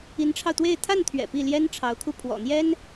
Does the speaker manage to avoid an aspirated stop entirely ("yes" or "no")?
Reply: no